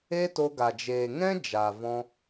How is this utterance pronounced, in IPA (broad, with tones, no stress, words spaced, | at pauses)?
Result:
e˦to˧ɡa˨ d͡ʒeː˨ŋɛ̃˦ d͡ʒa˨vɔ̃˧